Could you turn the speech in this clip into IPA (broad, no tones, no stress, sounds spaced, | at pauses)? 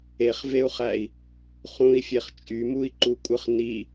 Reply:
e χ v e u̯ χ æ i̯ | χ ũ i̯ fʲ e χ t͡ʃʼ y m u i̯ ǃ u kʷʼ ɯ χ n i